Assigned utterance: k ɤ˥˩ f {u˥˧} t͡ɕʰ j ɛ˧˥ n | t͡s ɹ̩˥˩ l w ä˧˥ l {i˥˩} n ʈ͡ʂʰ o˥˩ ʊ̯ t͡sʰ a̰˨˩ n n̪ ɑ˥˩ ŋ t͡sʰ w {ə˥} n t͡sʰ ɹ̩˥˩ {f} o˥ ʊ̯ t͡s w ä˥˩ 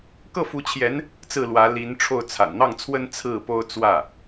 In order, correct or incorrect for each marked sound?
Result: incorrect, incorrect, correct, incorrect

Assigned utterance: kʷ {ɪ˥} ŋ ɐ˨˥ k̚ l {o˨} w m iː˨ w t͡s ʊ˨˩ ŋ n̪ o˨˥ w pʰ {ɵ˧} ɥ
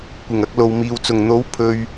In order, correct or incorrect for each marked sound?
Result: incorrect, correct, correct

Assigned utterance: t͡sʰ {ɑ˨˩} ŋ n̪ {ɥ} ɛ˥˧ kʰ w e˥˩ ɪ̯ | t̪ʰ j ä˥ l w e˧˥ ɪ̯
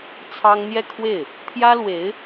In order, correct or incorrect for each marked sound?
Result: incorrect, incorrect

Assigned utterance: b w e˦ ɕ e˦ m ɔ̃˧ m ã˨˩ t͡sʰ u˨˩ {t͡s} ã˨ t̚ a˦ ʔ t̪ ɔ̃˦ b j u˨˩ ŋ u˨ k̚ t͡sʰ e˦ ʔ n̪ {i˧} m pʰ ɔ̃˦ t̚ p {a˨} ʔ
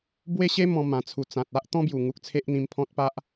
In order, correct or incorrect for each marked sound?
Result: correct, incorrect, incorrect

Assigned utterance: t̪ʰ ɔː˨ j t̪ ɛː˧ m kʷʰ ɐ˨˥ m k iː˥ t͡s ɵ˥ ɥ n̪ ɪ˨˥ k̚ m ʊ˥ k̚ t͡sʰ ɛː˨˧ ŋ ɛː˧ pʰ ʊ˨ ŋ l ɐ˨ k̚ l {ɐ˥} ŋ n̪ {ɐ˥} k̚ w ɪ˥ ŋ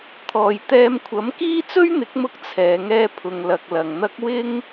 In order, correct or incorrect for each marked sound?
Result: incorrect, correct

